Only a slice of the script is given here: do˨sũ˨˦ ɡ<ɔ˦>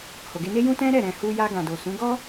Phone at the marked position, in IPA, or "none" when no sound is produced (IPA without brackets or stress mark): ɔ˦